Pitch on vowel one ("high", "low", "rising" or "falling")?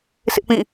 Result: high